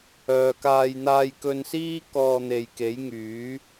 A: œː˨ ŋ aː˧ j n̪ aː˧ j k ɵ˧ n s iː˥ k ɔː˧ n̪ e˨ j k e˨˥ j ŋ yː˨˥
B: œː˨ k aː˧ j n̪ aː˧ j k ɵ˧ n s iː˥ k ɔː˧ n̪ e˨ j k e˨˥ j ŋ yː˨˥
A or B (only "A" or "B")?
B